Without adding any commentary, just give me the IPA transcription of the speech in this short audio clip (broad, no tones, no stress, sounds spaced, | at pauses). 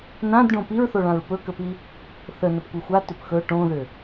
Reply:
n ã d ɖ õ p i ɹ θ o ɭ ã ɹ p ɵ k ə p i | θ ə n ə p kʷ e xʷ a t ʏ p x ɵ ʈ õ ð ʏ